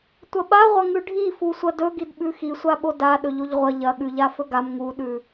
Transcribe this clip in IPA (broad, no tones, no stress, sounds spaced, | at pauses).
tʷ ɐ ɓ a ʁʷ ɐ ŋ ʉ ɖʱ i f u sʷ ɐ d ɵ ɡ i d ɓ ʉ x i sʷ a ɓ o d a ɗ ɵ ʎ o ʎ ʁʷ ɐ ʎ ɐ ɠ ʉ ʎ a f ɵ ɡ a m ŋ u ɗ ʉ